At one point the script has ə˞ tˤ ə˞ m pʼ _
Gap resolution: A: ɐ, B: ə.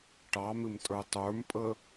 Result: B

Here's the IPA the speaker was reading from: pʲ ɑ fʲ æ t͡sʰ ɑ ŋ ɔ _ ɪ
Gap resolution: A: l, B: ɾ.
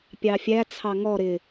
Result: B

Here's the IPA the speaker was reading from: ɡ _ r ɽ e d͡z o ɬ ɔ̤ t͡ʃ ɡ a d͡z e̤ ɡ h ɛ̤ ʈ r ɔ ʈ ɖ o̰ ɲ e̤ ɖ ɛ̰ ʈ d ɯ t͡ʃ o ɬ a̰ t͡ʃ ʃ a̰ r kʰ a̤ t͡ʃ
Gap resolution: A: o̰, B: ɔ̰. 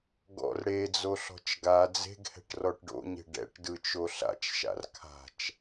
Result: B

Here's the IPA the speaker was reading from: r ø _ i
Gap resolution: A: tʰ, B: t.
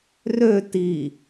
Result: B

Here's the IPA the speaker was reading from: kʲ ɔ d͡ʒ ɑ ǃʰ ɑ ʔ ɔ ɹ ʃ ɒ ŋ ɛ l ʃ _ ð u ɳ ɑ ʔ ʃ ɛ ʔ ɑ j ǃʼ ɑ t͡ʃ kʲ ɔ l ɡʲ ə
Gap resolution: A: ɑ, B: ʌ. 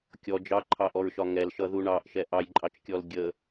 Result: B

